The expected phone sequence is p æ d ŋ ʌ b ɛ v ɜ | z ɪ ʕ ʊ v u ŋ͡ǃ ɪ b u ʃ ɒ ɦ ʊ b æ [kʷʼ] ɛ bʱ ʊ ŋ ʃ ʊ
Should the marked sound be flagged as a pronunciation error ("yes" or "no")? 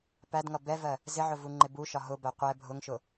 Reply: yes